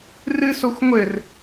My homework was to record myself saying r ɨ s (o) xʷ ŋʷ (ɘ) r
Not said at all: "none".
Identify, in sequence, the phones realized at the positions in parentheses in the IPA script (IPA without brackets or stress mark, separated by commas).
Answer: o, ɘ